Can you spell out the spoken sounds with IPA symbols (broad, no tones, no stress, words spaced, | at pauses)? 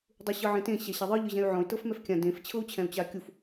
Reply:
dˤuɕɤʕẽtẽ ɕɛɕaðˤɯ ʎɯʑɛ̃y̯ʕɔ̃y̯ tɤfmɛfkʲã dẽf t͡ɕʰɤu̯t͡ɕʰɛ̃u̯t͡ɕakʲuf